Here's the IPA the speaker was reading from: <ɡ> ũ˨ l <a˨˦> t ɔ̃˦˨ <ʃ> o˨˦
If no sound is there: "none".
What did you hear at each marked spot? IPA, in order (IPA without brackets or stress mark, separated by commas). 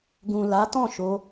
ɡ, a˨˦, ʃ